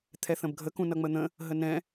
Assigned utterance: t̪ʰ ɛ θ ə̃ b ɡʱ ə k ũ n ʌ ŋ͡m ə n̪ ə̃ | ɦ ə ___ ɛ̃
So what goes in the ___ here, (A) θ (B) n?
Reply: B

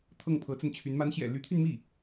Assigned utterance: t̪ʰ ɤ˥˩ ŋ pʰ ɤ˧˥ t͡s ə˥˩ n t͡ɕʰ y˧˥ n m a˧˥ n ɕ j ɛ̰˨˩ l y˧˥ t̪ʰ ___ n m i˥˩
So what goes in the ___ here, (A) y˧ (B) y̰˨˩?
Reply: A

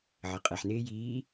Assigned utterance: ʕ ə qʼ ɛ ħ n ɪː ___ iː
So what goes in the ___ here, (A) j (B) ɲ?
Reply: A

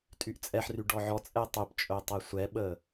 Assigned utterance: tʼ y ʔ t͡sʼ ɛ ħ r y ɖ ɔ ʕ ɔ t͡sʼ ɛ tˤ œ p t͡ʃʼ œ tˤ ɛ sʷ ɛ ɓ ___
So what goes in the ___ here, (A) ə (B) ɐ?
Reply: A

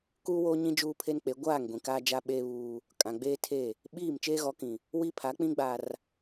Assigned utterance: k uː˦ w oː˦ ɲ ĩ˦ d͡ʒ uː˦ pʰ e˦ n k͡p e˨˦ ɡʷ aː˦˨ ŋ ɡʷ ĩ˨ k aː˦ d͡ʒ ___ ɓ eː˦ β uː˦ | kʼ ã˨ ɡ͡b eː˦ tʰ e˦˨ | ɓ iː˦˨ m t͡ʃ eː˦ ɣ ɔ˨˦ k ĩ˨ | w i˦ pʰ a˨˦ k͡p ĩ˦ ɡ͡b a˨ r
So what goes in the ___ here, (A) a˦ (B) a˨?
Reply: A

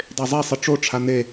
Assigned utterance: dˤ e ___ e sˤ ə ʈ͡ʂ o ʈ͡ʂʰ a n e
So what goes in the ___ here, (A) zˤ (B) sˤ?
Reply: A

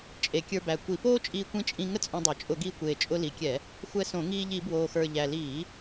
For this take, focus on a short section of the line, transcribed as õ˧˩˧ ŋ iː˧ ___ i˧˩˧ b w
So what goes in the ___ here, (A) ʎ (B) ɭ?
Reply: A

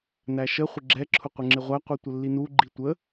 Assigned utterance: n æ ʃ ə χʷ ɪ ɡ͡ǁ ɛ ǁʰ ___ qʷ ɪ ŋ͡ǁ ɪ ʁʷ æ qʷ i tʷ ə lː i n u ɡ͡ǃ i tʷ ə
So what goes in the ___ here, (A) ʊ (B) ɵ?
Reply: A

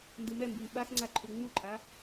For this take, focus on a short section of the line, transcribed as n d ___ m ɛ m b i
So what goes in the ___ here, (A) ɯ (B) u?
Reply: A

